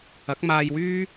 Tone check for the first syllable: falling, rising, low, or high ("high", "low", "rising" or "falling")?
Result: rising